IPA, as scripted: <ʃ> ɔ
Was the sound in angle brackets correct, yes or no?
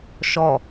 yes